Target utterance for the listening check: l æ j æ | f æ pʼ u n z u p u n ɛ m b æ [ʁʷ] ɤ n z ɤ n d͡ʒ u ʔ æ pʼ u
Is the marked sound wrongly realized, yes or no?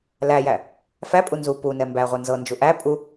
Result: no